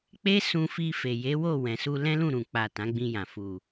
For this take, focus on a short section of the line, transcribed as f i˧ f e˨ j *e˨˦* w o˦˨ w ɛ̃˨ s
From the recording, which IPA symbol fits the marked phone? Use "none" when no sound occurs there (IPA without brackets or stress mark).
e˨˦